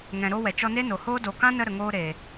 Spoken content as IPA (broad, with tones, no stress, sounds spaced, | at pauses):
ŋ ɛ̃˨ ɾ oː˧ w ɛ˨ t͡ʃ ɔ˧ n e˦ n o˨ h oː˦ d o˨ k ã˦ n ə˧ ɾ ə˨ ŋ oː˧ ɾ e˨